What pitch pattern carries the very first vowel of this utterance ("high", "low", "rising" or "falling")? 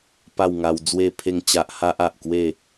falling